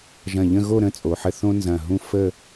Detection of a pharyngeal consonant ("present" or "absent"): present